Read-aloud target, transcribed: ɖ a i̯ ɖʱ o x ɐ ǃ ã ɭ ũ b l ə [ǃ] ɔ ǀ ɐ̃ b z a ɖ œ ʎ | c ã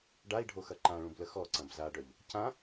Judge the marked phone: incorrect: x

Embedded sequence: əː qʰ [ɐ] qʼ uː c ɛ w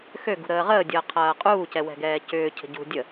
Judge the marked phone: incorrect: ɐː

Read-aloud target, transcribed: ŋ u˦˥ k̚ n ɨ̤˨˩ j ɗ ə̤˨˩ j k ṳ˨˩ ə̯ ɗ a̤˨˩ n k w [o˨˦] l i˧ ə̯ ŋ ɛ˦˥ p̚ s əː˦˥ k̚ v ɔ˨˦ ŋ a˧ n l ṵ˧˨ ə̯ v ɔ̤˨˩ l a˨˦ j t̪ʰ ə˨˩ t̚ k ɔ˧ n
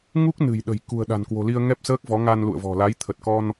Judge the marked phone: incorrect: o̤˨˩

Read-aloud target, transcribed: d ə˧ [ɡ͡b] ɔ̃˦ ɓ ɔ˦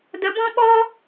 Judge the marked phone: incorrect: b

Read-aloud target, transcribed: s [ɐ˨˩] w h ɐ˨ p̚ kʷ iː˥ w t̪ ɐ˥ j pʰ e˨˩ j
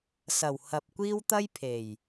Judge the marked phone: correct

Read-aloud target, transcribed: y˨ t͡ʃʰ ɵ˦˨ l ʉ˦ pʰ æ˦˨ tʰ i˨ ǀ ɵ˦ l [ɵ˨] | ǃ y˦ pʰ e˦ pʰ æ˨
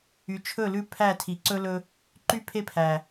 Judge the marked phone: incorrect: ɵ˦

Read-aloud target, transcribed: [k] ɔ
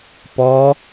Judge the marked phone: incorrect: p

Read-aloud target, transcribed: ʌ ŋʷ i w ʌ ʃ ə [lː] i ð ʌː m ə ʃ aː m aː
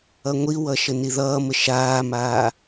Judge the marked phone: incorrect: n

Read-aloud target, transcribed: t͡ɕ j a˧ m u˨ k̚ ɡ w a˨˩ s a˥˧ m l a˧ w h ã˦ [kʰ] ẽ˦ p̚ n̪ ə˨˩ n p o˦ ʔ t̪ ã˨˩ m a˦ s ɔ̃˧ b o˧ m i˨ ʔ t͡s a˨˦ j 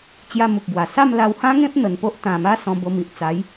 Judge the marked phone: incorrect: ŋ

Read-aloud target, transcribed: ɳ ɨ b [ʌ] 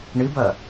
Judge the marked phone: correct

